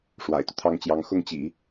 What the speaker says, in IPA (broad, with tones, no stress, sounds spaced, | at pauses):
ʂ w a̰˨˩ ɪ̯ t̪ u˦ t̪ʰ ɑ˥ ŋ t͡ɕ j ɑ˧˥ ŋ x ʊ˥˩ ŋ t͡ɕ ḭ˨˩˦